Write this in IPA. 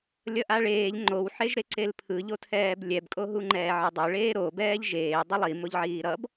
lʲ ʌ ʔ a ɭ eː ʎ ŋ͡ǃ o w ħ e ʒ ɾ e ǀ e l pʰ ɯ ʎ o tʰ ɛː b lʲ ɛ b kʼ o ɦ u ŋ͡ǃ ɛː ʕ ɯ dˤ o ɭ eː ɾ o b ɛː ʎ ʒ eː dˤ ʌ lˠ i m o ʎ ʕ iː ɾ ʌ b

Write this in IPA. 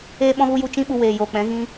eː˦ ɓ ɔ̃˦ ɣ u˦ j u˦˨ t͡ʃ ĩ˦ ɓ u˧ w eː˨ j oː˨ k͡p ɛ̃˨˦ ɣ ĩ˦

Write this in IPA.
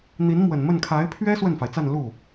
n̪ i˧˥ n m w ə˨˩ n m ə˥˩ n kʰ a˧˥ ɪ̯ pʰ ɥ ɛ˥ s w ə˥˩ n f a˩ ɪ̯ t͡s a˥˧ n l u˥˩

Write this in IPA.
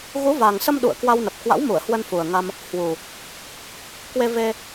ɣ u˨˦ v a˨˩ ŋ s ə˧ m ɗ ṵ˧˨ ə̯ k w a˧ w n ə˨˩ p̚ k w a̰˧˥ w m u˧˩ ə̯ h w ə˧ n f u˨˩ ə̯ ŋ a˧ m | h w u˨˩ | k w e˧ v e˧

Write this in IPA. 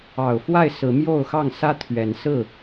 ɑ˨˩ ʊ̯ f w a˥˨ ɪ̯ s ɹ̩˨˦ m j o˥˨ ʊ̯ x ɑ˥˨ ŋ s ä˦ t̪ʰ ɥ ɛ˨˦ n s ɹ̩˥˨

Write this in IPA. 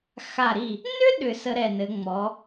x a˧˩ ɾ i˧˩ | n ʏ˥ ɗ ʏ˧˩ s ə˧ ɾ ɛ˧˩ n ɘ˩˧ ŋ͡m ɔ˩˧

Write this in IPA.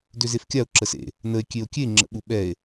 d ø z e f kʲ a o̯ ǁ ə s ḛ | n ə e̯ kʲ e o̯ kʲ e ŋ͡ǁ ə̰ ɓ u ɓ ɛ e̯

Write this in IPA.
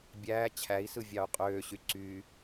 bʲ æː t͡ɕʰ æ i̯ s ɯ vʲ ɑ u̯ qʼ øː ɕ y ǀ y

